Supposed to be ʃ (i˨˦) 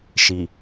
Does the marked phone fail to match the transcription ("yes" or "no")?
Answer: yes